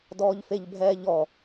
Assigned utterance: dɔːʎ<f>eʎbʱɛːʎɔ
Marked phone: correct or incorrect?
correct